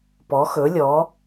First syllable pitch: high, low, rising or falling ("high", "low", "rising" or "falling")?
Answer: rising